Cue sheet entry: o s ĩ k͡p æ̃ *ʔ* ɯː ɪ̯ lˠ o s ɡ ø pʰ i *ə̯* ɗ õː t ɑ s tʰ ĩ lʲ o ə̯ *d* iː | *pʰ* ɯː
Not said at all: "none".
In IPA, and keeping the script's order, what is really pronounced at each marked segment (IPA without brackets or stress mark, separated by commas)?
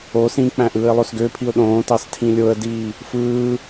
ʔ, ʊ̯, d, f